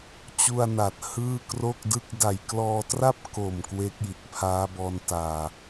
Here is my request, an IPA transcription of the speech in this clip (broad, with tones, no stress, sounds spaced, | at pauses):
t͡ɕ u˧ a̯ n a˨˩ t̚ h ɯː˥˩ k r o˥˩ k̚ d ɯ˥˩ k̚ d a˨˩ j k l ɔː˧ t r a˥˩ p̚ k o˨˩ m k w eː˦˥ k̚ j i˨˩ t̚ pʰ aː˦˥ b ɔː˧ n t aː˨˩